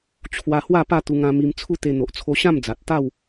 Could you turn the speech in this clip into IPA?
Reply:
t͡ɕʰwa˧hwa˥˧ pa˥˧t̪u˧ŋã˧mi˧m t͡sʰu˦t̪e˧ n̪o˨ʔt͡sʰo˧ɕã˥˧md͡za˨t̚ t̪a˥˧w

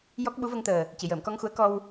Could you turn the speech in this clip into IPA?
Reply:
jɔ˦˥k̚ɓu˧˥və˧ŋt̪əː˨˩ | ci˨˩˨jəː˨˩˨mkɔ˧ŋxu˧˥ə̯ kɔ˧w

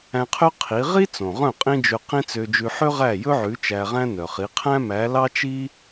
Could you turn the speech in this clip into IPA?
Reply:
æ̃˧qʰø˥ qʰi˩˥ ʁi˥ t͡sõ˩ʁœ̃˥˩ qʼĩ˥d͡ʒø˧qĩ˥ t͡sø˧d͡ʒʉ˧ ħø˥ʁæ˥˩ jɵ˥ʕʉ˩˥ t͡ʃæ˧ʁæ̃˥nœ˩χi˩˥ qʰæ̃˥mæ˩˥ lɑ˥t͡ʃi˥

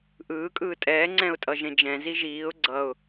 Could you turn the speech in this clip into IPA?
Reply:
ʔɯː kʼɯːtʼɛː ŋ͡ǀɛ̃ʊ̯tʼʌʒẽd͡ʒɛ̃ ziʒiːʊ̯ ɡ͡ǀʌʊ̯

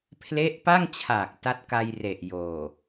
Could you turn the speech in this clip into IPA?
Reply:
pʰle˦˥ʔpa˥˩ŋt͡ɕʰa˨˩k̚ ta˦˥t̚ka˧jre˨˩ʔ joː˨˩

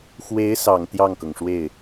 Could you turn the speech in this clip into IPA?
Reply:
xwe˧˥ɪ̯sɑ˨˩ŋ t̪jɑ˥˩ŋkɤ˩ŋʂwe˥˩ɪ̯

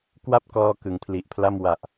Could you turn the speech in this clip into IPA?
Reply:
kwa˥˩p̚kɔː˧ kɯ˨˩ŋpʰli˨˩ʔpʰla˥˩m wa˨˩ʔ

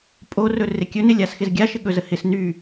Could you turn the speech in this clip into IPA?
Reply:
pʼorɵ rɪkʲɵnɪ lʲasxɪzɡʲaʃɪ ɠɵzə hɪs ny

